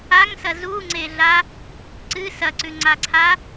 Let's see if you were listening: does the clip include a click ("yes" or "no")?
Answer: yes